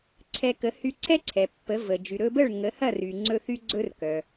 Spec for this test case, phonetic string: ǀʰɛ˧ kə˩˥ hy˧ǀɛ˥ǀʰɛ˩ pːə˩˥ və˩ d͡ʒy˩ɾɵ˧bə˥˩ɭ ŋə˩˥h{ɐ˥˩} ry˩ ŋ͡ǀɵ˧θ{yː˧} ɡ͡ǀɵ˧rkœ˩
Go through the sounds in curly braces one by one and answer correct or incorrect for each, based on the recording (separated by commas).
correct, incorrect